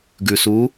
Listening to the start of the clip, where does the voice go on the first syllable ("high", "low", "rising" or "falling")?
low